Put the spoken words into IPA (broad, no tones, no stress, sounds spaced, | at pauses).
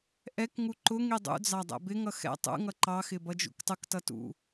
ʔ ɛ k ŋ u ǃ ʊ ŋ i dˤ ṵ d͡z ɑ dˤ ɛ̰ b ɪ ŋ ʌ x ɛ̰ tˤ ṵ ŋ ʌ ǃ ɑ x ɪ b ʌ d͡ʒ ṵ k tˤ ʊ k t ʌ t ṵ